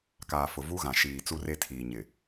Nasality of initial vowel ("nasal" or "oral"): oral